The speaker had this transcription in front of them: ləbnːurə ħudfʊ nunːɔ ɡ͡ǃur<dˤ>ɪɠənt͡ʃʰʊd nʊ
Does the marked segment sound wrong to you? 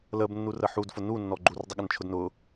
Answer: no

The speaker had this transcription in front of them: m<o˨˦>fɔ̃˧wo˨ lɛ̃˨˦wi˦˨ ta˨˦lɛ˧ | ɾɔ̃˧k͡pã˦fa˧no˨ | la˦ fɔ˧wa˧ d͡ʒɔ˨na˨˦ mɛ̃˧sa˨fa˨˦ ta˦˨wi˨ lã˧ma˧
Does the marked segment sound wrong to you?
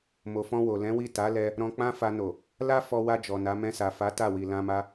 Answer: yes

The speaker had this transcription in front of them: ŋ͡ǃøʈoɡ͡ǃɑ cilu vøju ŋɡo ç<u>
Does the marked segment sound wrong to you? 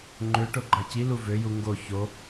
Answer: yes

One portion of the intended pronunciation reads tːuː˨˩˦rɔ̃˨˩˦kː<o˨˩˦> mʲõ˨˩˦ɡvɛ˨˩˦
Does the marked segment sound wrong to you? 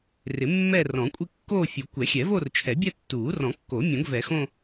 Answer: no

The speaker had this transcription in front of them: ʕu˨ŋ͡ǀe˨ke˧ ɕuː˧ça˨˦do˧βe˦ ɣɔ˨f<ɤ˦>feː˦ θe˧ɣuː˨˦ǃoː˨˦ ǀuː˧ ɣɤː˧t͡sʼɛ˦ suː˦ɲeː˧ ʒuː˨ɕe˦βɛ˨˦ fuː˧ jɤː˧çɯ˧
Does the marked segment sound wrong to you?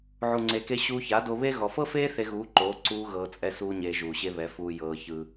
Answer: no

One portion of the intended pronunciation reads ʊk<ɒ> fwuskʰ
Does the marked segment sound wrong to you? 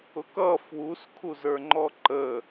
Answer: yes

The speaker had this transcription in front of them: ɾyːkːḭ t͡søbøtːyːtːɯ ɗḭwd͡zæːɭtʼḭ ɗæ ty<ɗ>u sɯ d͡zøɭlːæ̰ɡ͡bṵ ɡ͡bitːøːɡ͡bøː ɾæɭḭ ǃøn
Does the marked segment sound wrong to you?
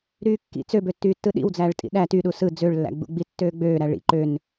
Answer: no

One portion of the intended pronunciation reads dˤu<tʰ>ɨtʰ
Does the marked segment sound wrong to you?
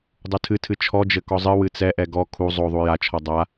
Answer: no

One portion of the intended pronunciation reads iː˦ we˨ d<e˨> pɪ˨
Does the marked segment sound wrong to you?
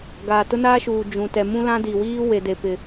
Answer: no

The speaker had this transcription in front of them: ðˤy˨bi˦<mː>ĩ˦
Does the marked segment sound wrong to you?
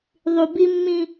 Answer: no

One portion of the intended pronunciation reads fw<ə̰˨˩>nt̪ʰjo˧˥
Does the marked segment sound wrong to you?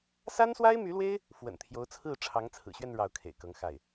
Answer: no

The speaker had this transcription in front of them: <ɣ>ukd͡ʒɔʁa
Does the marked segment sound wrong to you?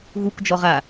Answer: no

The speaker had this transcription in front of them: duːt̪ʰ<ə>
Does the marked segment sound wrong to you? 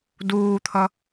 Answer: yes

